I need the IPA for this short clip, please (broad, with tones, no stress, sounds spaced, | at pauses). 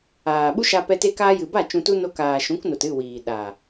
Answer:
aː˨ ɓ u˦ ʃ a˧ p ɛ˧ t e˧ k aː˧ j ɨ˨ b a˦˨ t͡ʃ ũ˧ t u˦ n o˧ k aː˨ ʃ ũ˨˦ k n o˨ t ɨ˦˨ w iː˨ ɗ a˨